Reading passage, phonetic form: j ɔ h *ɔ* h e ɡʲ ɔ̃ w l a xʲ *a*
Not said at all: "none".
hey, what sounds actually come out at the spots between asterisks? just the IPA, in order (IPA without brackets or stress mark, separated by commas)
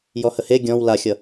ə, ʌ